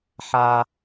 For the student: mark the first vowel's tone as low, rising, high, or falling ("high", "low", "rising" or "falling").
high